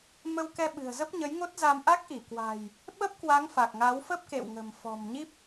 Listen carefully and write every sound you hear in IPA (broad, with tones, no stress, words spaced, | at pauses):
mə˧wkɛ˧ɓɨ̤˨˩ə̯ zə˦˥p̚ɲə˨˦jŋo˦˥t̚za˧m ʔa˦˥k̚ʔi˧˩kwa̤˨˩j | ɓə˦˥p̚kwa˨˦ŋ fa˨˩k̚ŋa˨˦wfə˦˥p̚kḛ˧˨w ŋə̤˨˩mfɔ̤˨˩m ɲi˦˥p̚